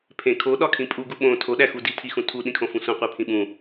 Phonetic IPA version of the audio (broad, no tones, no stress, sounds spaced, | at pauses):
pʰ ẽ kʰ o ɗ ɒ kʰ ĩ pʼ u ɡ u ɓ õ tʰ o ɗ æ x u d i tʰ i x ũ tʰ u ɗ ĩ kʰ õ f ũ sʷ ĩ qʷ i pʰ ĩ ɓ ũ